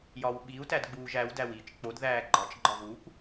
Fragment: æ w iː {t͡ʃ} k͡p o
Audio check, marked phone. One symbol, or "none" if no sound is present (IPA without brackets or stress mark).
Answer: t͡ʃ